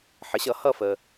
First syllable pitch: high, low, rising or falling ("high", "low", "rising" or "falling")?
rising